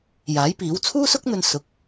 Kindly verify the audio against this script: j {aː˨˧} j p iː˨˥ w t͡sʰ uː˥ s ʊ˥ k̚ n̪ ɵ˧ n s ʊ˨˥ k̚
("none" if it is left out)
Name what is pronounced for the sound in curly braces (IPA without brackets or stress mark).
aː˨˥